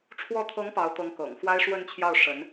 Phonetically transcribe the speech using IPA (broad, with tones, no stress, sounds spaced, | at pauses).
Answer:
ʈ͡ʂʰ w ɔ˧˥ t̪ʰ ɤ˧˥ ŋ p ɑ˧˥ ʊ̯ t̪ ɤ˧˥ ŋ k ɤ̰˨˩ ŋ x w a˥ ɪ̯ ʂ w ə˥˧ n t͡ɕʰ j ɑ˥˩ ʊ̯ ʂ ə˧˥ n